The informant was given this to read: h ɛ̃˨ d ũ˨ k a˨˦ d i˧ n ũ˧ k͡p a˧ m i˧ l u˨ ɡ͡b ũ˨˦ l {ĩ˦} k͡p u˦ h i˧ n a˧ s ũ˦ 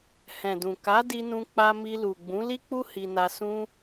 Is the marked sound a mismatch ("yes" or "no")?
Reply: yes